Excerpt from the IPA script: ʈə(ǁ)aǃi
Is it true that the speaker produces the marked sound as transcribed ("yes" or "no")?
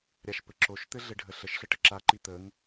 yes